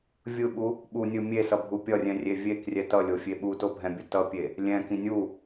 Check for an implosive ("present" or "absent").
present